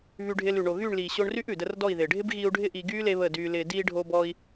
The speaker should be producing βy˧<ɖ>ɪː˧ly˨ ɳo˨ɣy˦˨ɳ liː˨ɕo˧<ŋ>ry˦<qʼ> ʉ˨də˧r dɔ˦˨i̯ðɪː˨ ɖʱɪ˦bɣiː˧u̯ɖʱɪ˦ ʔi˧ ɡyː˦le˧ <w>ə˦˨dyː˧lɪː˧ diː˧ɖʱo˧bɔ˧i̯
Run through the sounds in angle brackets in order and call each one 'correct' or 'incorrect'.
incorrect, incorrect, incorrect, incorrect

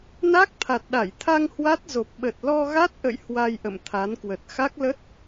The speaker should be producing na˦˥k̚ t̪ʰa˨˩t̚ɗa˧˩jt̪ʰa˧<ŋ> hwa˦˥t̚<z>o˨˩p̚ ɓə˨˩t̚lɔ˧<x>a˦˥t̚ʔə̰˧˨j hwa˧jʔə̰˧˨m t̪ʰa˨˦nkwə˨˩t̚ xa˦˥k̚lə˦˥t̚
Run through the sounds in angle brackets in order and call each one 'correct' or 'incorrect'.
correct, correct, incorrect

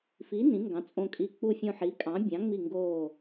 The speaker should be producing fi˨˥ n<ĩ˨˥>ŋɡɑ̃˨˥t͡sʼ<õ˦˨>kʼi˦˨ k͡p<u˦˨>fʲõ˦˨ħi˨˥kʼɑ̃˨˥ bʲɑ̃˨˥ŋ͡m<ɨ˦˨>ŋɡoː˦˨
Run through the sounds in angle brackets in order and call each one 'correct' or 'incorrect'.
correct, correct, correct, incorrect

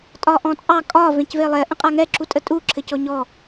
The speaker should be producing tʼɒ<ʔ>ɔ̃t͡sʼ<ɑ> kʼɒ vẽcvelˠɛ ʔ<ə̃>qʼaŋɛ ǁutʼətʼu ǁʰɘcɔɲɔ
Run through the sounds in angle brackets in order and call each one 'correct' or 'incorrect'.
correct, correct, correct

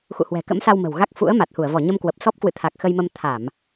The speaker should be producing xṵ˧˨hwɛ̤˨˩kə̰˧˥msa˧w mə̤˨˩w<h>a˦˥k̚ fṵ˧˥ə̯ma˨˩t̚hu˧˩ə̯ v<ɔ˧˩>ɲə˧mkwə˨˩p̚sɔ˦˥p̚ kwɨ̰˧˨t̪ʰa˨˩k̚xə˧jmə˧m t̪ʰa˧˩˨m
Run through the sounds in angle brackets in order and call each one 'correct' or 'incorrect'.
incorrect, correct

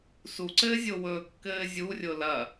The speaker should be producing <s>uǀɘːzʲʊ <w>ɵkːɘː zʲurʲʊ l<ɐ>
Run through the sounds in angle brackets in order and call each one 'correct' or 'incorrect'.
correct, correct, correct

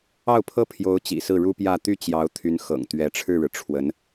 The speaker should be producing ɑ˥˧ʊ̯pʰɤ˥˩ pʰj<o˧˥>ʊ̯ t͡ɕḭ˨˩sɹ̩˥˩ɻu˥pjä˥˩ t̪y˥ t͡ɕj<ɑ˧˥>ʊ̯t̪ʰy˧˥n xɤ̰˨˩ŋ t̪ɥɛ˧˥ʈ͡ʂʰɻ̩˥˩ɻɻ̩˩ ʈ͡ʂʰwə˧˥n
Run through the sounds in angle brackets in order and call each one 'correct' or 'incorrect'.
correct, correct

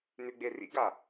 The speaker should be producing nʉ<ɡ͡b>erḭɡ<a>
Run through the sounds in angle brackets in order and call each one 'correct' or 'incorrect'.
correct, correct

